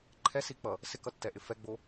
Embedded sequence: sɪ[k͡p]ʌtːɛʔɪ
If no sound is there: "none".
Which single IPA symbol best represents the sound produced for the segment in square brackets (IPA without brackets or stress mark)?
k